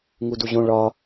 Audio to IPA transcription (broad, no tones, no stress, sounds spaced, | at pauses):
ŋ u d u ʑ õ ɭ ɒ